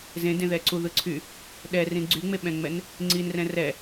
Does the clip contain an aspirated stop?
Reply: yes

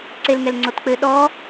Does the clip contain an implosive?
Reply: yes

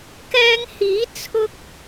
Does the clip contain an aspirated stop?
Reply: yes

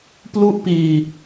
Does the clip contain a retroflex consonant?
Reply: no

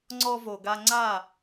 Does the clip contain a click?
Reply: yes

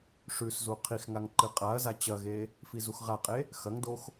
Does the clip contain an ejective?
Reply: yes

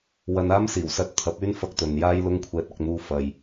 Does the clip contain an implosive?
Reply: no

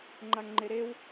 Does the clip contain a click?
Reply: yes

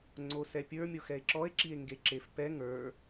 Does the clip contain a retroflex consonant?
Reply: no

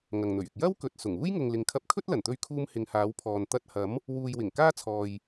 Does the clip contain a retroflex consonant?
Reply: no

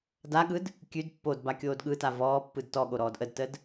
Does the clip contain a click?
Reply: no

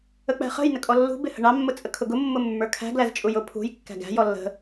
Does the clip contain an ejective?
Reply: yes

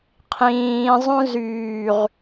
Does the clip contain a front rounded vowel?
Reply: yes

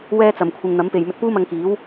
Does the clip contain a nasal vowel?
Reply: no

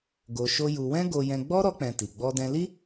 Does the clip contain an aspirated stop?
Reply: no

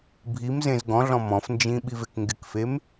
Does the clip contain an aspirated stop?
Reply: no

